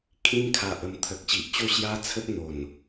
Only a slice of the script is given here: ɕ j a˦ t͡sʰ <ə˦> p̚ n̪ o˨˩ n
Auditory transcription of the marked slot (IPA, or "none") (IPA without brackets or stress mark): ə˦